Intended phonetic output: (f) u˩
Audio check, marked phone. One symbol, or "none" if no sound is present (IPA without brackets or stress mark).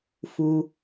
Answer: f